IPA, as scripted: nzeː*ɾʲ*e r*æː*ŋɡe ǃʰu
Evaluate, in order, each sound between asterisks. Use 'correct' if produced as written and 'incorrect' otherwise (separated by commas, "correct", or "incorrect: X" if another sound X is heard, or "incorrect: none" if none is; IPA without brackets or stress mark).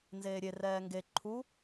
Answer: correct, incorrect: ɛː